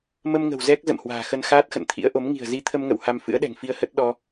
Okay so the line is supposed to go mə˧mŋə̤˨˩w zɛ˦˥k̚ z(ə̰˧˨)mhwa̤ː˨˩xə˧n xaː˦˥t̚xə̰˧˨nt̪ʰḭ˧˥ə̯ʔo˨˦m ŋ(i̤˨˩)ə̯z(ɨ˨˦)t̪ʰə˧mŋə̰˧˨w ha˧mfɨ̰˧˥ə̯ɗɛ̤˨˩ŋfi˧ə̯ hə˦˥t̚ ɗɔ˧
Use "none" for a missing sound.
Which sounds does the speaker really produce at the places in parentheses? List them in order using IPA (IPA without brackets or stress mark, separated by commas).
ə̰˧˨, i̤˨˩, i˨˦